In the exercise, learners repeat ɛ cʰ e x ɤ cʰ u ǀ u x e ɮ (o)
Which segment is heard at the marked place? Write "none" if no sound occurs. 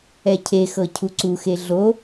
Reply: o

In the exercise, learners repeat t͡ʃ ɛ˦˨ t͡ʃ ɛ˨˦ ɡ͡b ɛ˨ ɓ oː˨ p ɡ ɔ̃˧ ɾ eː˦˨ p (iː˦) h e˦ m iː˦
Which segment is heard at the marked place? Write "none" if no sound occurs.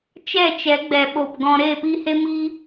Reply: iː˦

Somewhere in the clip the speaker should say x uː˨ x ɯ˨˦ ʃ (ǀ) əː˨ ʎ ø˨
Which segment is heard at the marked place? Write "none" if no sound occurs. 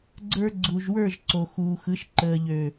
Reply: ǃ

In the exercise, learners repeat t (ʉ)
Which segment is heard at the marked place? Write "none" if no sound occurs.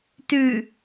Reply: ʉ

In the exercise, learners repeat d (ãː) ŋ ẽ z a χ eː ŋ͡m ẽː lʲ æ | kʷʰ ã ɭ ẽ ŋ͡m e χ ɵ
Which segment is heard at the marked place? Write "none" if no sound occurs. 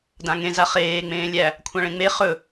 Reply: ã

